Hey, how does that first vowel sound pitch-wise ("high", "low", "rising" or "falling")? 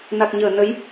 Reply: low